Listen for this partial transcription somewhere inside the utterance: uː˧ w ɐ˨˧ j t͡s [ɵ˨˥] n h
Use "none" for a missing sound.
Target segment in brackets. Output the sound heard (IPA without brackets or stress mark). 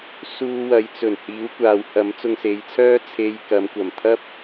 ɵ˨˩